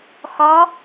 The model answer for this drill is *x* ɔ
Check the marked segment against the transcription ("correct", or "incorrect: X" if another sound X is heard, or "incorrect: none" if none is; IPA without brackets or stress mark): correct